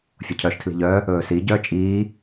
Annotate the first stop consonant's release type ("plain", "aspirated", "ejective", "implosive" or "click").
aspirated